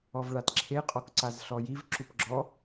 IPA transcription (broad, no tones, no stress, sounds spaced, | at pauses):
ɔ v ɭ a t ǁʰ e qʼ ɔ k ǀ a z ɬ ɔ j i v ǁ u p ɡ͡ǁ ɔ